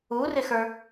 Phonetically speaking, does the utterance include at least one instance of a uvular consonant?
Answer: no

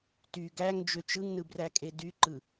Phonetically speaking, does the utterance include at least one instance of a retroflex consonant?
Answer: no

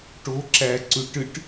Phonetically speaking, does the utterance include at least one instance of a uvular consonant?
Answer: no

